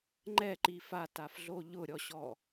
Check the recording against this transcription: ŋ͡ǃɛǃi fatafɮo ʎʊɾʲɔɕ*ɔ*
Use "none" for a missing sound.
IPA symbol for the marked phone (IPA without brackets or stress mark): ɔ